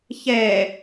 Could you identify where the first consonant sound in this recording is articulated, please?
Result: palatal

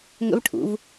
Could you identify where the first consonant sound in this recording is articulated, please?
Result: velar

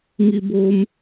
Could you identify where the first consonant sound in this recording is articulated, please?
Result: velar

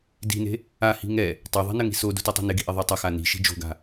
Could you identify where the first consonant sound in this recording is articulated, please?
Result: alveolar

